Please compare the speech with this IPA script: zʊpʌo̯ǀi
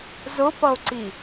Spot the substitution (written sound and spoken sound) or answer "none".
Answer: none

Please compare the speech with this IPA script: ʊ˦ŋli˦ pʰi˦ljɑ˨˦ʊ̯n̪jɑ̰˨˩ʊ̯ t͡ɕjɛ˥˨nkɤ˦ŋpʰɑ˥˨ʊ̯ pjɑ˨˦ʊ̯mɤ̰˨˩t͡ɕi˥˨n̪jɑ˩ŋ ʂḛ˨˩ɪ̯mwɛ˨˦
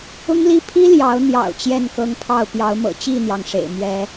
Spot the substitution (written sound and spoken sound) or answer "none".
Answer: w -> ɥ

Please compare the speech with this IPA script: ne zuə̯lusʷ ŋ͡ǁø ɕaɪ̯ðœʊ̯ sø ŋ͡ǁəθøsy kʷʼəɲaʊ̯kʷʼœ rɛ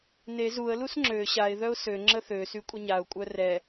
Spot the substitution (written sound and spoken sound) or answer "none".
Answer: sʷ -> s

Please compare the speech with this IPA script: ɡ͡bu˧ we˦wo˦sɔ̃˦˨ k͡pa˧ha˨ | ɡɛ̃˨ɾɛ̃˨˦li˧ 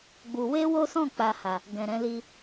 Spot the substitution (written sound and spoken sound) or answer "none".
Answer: none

